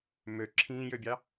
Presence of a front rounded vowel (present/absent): present